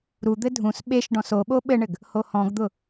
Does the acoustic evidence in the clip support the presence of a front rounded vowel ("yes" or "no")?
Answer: no